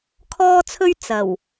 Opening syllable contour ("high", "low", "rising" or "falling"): high